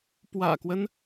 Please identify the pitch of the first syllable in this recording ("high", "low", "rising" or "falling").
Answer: low